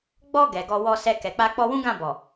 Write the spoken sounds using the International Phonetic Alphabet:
ɡ͡b ɔ˧ ɡ ɛ˨ ɡ ɔ˧ w ɔ˧ s ɛ˧ k ɛ˨ k͡p a˧ k͡p ɔ˧ w ũ˦ ɡ ã˦˨ b ɔ˨

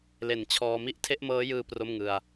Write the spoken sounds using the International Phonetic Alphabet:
l e˨˩ n t͡ɕʰ ɔː˧ m i˦˥ ʔ tʰ e˥˩ ʔ m ɤː˦˥ j ɯː˧ p r o˥˩ m ŋ ɯ˧ a̯

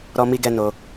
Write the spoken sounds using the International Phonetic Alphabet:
ɾ ɔ˧ m i˧ ɡ ɛ˧ n o˧

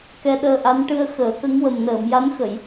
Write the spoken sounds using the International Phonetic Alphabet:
k ɛ˧ ɗ əː˧ ʔ a˧˥ n ʈ ɨ˧ ə̯ x əː˨˩˦ k ə˧˥ ŋ w ə˨˩ m n əː˨˩˨ m j a˧˥ n x ə˨˩˨ j

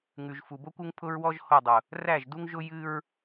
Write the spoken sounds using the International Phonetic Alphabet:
ŋ ʉ˨ ʒ f u˨ b o˦ kʷ u˦ ŋ pʰ ʊ˦ ɹ w ɔ˦ ʒ h o˦˨ dˤ ʊ˨ | r æ˦˨ ʒ d u˦ ŋ ʒ ʊ˦ j ɨ˦ ɹ

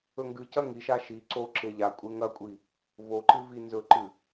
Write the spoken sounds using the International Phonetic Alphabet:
ɵ ŋ ɡ ɨ c ɐ ŋ i ʃ a ʃ i ǀ o ǁ e ʎ a kʷʼ e ŋ ɐ kʷʼ i | v o ǃ ɨ v i n z ɵ ǃ ɨ

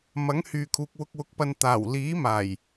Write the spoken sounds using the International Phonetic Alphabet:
m ɐ˨˥ ŋ h yː˨ kʰ uː˨ k̚ w ʊ˧ k̚ w ʊ˨˥ k̚ p ɐ˧ n t̪ aː˨˩ w l iː˨˥ m aː˨˩ j

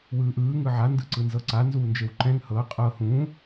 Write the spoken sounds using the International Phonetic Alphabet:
w ɯː ʔ ɯː ŋ ɯ ʕ a n d ɯ ǀ ɯ n z ɤ ǀ a n z uː n d͡ʒ e w ǃ ɛ̃ ŋ h ɤ qʼ ɤ h ũ

